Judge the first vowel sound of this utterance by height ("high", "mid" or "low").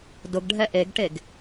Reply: high